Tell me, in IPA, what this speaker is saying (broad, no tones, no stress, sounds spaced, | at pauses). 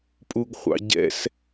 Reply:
pʼ u ɡ χʷ ɑ̰ ɟ ɛ̰ s